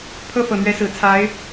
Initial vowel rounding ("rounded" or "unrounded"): unrounded